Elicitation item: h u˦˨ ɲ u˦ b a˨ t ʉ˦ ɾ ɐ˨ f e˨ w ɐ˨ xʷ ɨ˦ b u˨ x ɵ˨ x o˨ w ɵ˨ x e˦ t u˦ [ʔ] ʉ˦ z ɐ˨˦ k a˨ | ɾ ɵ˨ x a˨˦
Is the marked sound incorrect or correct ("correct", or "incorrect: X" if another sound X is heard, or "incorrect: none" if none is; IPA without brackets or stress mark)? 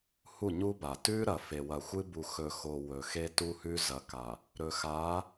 incorrect: h